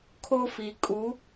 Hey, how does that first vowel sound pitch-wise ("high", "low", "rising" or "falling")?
high